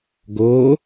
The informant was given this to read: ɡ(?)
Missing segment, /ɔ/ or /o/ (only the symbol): o